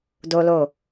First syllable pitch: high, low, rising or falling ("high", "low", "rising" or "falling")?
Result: high